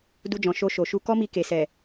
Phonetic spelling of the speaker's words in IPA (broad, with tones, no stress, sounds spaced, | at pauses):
d u˧ d͡ʒ ɔ̃˨ ʃ o˧ ʃ o˨ ʃ u˧ k ɔ˦ m i˧ k e˨ s ɛ˨